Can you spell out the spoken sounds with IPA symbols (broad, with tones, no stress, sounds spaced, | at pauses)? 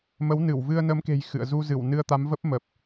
m ə˨˦ w n ɨ˧˩ w v ɨ˧ ə̯ n ə˨˦ m k e̤˨˩ j x ɨ̰˧˨ ə̯ z u˧ z ɨ˧˩ w n ɨ˧ ə̯ t̪ a˨˦ m v ə˦˥ p̚ m ə˨˩ p̚